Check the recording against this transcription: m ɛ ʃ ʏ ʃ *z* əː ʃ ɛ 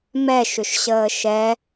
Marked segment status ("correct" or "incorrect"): incorrect